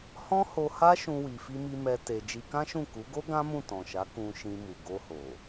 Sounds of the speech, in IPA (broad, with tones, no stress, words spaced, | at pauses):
hɔ̃˦ho˧ha˦ ʃũ˦wi˧fi˦mi˦ mɛ˧ te˧ d͡ʒi˧kã˦ʃũ˦˨ ku˨˦ɡo˦ ɡã˦mũ˦˨tɔ̃˨ʃa˨˦ kũ˧ʃĩ˧mu˨ ɡo˧ho˨